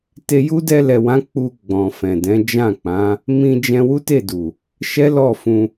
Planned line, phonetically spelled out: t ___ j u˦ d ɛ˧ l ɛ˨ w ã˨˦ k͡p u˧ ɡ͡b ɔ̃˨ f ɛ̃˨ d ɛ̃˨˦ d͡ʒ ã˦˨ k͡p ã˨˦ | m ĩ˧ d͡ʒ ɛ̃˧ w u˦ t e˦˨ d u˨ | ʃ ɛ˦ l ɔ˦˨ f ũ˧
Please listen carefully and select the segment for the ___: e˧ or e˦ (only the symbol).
e˧